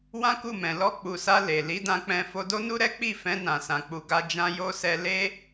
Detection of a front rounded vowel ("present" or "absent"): absent